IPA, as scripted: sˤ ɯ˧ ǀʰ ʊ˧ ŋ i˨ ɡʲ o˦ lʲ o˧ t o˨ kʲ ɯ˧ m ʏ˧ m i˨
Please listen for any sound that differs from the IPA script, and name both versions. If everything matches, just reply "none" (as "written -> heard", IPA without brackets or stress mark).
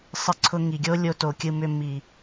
none